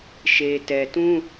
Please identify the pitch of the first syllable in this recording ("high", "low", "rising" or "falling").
low